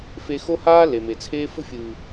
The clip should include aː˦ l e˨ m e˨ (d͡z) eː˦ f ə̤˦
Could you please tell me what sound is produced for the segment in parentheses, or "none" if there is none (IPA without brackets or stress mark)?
t͡sʰ